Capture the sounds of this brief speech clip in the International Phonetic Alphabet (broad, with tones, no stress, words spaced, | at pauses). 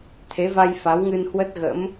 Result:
t̪ʰe˨˦va˧j fa˨˦wŋɨ˧nhwə˦˥t̚ɣə̰˧˥m